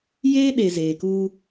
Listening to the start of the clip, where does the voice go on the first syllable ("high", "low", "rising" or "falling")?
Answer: high